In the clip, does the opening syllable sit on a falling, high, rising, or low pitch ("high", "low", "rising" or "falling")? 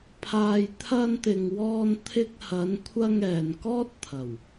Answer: low